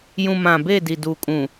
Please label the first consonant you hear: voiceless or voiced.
voiced